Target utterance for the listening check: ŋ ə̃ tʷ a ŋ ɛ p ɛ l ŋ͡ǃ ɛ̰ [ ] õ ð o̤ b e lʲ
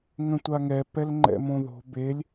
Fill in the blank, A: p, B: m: B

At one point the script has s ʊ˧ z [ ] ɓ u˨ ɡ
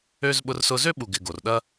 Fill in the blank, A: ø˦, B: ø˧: A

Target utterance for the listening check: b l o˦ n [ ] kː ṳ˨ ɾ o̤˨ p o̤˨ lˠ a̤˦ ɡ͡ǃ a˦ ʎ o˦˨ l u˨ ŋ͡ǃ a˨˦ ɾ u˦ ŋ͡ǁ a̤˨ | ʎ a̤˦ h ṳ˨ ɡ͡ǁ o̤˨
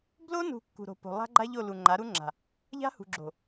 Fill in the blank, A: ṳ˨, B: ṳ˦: A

